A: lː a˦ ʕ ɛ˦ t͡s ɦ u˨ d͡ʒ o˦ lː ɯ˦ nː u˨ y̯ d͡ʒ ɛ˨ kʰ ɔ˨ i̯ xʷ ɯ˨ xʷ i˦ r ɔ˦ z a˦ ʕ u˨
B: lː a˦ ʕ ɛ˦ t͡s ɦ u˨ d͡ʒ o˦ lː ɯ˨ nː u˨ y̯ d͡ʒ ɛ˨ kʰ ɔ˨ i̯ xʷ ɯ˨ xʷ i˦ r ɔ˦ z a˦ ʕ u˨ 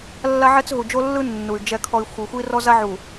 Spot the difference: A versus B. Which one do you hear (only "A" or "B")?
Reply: A